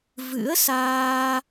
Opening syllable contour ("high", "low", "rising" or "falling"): rising